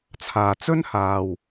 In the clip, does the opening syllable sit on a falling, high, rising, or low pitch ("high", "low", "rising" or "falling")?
low